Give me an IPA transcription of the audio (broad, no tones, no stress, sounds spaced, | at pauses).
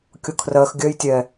kʲ ʊ kʰ r ɜ x ɡʲ œ j tʲ ɛ